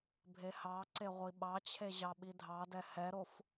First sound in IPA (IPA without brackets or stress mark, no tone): bʱ